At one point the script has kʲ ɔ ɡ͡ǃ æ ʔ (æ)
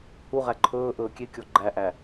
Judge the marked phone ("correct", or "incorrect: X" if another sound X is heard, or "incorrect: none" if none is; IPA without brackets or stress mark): correct